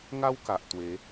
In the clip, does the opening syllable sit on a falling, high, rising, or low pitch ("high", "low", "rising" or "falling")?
high